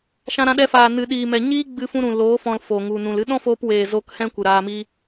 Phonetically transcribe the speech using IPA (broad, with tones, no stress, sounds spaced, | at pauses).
ʃ ã˧ ɾ ã˧ ɗ ɛ˧ f aː˨ n ɨ˨ ɗ iː˨ m ɛ˨ ɲ iː˦ ɡ͡b ɨ˧ f ũ˧ ɾ ũ˨ l oː˨˦ f ɔ̃˧ l f o˨ ŋ u˨ n ũ˨ l ɨ˧ ɗ ɔ̃˦ f oː˧ p w eː˨ z o˧ k h ɛ̃˦ kʷ ɨ˨ ɾ aː˧ m i˦